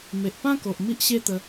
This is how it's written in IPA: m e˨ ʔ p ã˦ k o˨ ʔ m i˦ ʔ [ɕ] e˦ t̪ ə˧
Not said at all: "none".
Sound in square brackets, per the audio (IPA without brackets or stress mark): ɕ